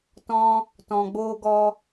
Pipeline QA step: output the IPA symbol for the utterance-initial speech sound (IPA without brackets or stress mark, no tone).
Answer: t